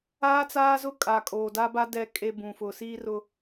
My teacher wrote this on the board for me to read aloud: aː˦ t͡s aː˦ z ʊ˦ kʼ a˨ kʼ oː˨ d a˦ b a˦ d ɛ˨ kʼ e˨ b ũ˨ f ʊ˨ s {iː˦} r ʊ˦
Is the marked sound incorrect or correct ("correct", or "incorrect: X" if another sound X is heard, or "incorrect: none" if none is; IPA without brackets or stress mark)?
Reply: correct